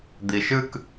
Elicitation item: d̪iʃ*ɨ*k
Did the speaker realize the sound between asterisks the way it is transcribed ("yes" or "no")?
yes